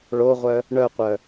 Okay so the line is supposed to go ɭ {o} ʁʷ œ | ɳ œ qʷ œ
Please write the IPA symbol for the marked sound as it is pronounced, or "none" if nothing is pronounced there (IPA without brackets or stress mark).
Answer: o